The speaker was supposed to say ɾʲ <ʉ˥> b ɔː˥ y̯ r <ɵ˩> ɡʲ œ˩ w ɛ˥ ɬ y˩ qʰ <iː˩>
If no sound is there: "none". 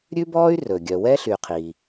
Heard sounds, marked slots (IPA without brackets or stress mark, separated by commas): ʉ˥, ɵ˩, iː˩